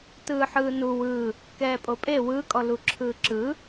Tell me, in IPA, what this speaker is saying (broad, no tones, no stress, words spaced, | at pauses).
tɯːħɯːnu wɯ | kɛːpʼopʼe wɯ kʼɔluǁʰɯːǁɯ